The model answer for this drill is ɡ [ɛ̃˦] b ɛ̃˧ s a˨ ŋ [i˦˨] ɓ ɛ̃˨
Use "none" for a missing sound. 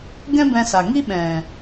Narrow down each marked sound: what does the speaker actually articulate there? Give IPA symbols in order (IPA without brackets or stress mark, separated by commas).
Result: ɛ̃˦, i˦